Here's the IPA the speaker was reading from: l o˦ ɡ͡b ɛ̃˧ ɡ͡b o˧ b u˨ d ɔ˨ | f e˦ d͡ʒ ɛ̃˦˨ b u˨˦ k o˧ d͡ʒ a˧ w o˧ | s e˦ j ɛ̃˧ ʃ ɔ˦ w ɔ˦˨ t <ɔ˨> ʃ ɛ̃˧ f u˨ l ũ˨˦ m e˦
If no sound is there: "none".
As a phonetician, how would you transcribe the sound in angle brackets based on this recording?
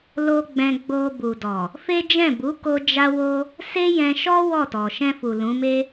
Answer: ɔ˨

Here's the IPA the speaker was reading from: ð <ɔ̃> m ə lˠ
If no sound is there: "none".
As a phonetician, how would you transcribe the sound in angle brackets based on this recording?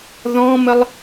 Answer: ɔ̃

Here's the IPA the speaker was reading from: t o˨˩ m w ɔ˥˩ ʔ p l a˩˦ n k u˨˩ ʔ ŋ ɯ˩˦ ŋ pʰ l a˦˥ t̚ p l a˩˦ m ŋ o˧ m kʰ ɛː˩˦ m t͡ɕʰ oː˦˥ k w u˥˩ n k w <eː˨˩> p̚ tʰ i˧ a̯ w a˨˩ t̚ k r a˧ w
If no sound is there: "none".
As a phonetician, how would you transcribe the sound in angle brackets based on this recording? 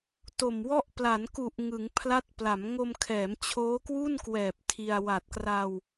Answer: ɛː˨˩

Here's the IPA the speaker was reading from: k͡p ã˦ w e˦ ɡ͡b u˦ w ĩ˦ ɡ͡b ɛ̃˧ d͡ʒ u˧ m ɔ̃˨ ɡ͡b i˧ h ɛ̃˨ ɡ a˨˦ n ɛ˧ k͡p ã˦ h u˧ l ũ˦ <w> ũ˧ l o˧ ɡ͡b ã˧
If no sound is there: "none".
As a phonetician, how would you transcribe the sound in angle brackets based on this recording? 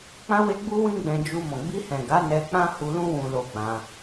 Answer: w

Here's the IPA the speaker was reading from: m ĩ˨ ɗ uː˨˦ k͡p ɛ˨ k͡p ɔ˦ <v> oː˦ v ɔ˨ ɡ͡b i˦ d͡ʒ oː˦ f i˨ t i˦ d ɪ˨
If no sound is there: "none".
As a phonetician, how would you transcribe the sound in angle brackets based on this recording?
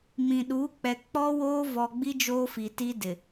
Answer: w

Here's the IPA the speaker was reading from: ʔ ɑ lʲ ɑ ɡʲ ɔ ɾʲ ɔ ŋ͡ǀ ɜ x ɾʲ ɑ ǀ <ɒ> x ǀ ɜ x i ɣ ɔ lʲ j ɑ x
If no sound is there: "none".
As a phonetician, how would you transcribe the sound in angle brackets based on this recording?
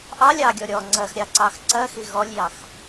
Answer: ɑ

